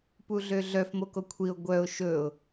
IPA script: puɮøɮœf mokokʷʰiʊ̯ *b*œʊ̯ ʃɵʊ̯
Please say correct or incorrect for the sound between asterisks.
incorrect